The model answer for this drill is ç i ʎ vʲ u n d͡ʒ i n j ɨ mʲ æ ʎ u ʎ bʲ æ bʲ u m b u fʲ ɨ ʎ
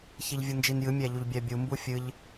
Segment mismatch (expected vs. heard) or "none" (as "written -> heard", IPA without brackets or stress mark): none